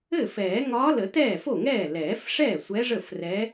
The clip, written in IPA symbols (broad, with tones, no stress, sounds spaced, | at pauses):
ɘ˥˩ f ɛː˨˩˦ ŋ ɒː˧˥ l ə˨˩˦ t ɛː˥˩ f o˥˩ ŋ ɛː˥˩ l ɛː˨˩˦ f ʂ ɛː˥˩ sʷ ɛ˧˥ ʐ ə˥˩ f r ɛ˧˥